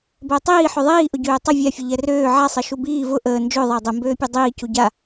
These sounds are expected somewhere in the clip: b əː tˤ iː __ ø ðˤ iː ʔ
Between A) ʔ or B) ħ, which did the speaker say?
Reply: B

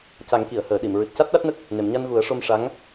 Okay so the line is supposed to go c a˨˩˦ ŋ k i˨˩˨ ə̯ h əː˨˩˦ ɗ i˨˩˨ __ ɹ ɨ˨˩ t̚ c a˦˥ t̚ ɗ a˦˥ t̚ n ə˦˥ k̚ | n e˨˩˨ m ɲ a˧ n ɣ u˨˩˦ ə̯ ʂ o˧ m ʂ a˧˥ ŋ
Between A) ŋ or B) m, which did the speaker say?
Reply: B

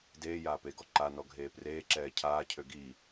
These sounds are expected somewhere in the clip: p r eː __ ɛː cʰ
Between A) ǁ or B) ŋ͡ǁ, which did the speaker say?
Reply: A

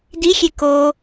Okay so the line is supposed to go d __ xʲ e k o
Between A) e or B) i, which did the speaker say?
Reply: B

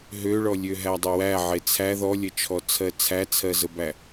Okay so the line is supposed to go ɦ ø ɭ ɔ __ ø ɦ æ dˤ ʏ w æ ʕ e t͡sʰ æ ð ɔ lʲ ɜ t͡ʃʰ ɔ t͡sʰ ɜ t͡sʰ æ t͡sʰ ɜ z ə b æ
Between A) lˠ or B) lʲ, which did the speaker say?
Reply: B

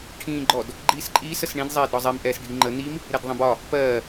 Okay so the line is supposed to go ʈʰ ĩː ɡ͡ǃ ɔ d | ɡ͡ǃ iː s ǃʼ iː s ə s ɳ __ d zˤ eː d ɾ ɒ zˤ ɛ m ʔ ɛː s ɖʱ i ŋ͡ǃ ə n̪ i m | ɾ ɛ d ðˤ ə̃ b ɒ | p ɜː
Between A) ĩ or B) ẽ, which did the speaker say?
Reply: A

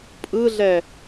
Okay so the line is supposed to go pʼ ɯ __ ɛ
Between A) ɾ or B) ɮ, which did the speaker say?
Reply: B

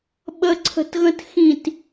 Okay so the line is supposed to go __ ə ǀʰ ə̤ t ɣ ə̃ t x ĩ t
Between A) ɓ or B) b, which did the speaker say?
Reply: A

